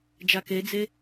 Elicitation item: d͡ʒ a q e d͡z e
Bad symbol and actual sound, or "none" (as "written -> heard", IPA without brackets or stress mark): q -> k